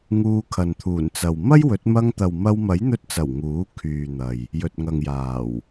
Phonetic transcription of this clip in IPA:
ŋuː˧kʰɐ˨nt̪ʰuː˨˩nt͡sɐ˨w mɐ˥jwɵ˨˥t̚ mɐ˧ŋt̪ɐ˨w mɐ˧wmɐ˨˥jn̪ɵ˧t̚t͡sɐ˨˩w ŋuː˨˥ kʰyː˨n̪ɐ˨j | jɵ˨t̚ŋɐ˨ŋjaː˨˩w

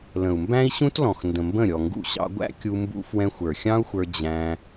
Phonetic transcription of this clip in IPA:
lə̃˨u̯mbæ̃˦i̯ɕũ˦tlɔ̃˨x ndə̃˨mbə̃˦˨ ɾʲɔ˨ŋɡṵ˧ɕɑ̰˧ɡʷæ̰˦ kʲu˧mbṵ˧ fwɛ̃˧xʷə˞˨xʲɑ̃˦u̯xʷə˞˧ d͡ʑæ̃˧

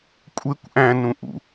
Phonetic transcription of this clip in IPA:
kʷʼekʷ ʔæ̃nũʔṵ

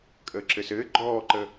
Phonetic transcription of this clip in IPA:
kʼəːǁɘsɘː ɡ͡ǃɔːǃə

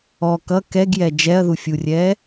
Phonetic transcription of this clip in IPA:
ɔ kʌ kɛɡjɛ d͡ʒɛɐ̯ðufʲurʲɛː

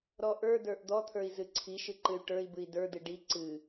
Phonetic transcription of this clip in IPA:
ɾɔʔə˞də˞ʔ d̪ɔt̪ʰə˞i̯ zɨǀʰiʃɨ ǃɨy̯ʈə˞i̯bɨi̯ də˞dɨ ɖi ǀɨ

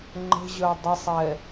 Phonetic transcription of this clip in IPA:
ŋ͡ǃə̤ʑœ dˤəsˤɛ

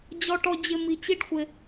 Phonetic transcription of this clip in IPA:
d͡ʑɔ˧ʈɔ˧ d͡ʑɪ˧mi˨ t͡ɕi˦ɖxʷɪ˧

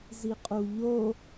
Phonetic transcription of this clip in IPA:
ziqʼuʎo

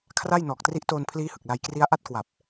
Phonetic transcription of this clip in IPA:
kʰra˥˩j nɔː˨˩k̚tri˦˥ʔtoː˧npʰliː˦˥ hɯ˨˩k̚la˧jkri˦˥a̯ ʔa˥˩t̚kwa˨˩p̚

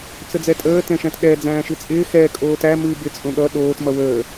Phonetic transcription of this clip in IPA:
t͡səd͡zɛtʼəː tɛ̃ʃæ̃tɗɛ d͡zæ̃ːʃɨt͡sʼɪː xɛ kʼoːtæ mɨːbɪ t͡sʼõɠʌ ɗoːt mʌwəː

